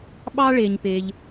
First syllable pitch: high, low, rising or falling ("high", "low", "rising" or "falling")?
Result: high